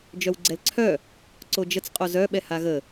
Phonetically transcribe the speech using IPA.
d͡ʒ œ w ɡ͡ǀ ɛ l ǀʰ œ | ǀ o d͡ʒ ə t͡s qʼ o z œ ɓ ɛ h a ɣ ə

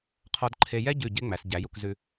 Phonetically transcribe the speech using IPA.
qʰ ɔ˧ d ǃʰ e˧ j ɛ˥ ɟ ʉ˧˩ ɟ e˥ ŋ͡m æ˩˧ s ɟ æ˩˧ j u˧ k z ʉ˧

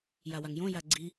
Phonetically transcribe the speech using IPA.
j a w a ŋ j õ j a ɡ͡ǀ i

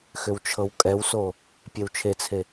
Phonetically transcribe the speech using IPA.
x ʏ w t͡ʃʰ ɤ w kʼ ɛ w s o | pʲ e w t͡ʃʰ e t͡sʰ e

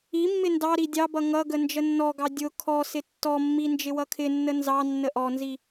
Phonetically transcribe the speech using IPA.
i mː ɪ n d ɑ ɾ i dʲ ɑ b ʌ ŋ ʌ ɡ ə n d͡ʒ ə nː ɔ ɡ ɑ dʲ ʊ kʰ ɔ s ɪ tː ɔ mː i n d͡ʒ ɪ w ʌ kʰ ɪ nː ə n z ɑ nː ə ʔ ɔ n z i

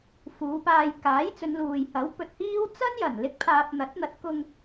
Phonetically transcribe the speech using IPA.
f uː˨˧ p aː˧ j k aː˨˥ j t͡s ɵ˨˧ n l uː˨ j h ɐ˨˥ w p ɵ˨ t̚ h iː˥ w t͡s ɐ˥ n j ɐ˨˩ n l ɪ˥ k̚ pʰ aː˧ p̚ n̪ ɐ˨˥ t̚ n̪ ɐ˨˥ t̚ k ʊ˧ ŋ

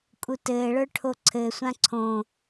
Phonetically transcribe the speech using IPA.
kʼ u t ɘː ɭ ə˞ ʈʰ o ǀʰ ɘ sʷ ã ǀʰ õ

